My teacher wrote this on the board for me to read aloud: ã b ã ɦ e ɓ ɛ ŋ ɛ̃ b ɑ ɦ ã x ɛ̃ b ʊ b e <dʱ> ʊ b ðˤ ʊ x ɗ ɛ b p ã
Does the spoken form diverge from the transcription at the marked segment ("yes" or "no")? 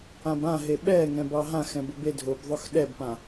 no